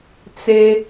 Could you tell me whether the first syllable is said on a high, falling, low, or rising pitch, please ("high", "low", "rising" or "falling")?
high